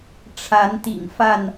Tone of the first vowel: rising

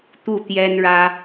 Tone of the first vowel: falling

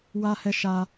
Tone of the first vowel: high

